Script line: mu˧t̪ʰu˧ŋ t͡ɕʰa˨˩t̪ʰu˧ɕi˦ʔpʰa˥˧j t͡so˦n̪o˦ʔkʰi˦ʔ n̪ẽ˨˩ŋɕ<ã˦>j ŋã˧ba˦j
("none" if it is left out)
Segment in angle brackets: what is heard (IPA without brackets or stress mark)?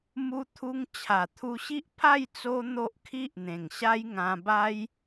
a˦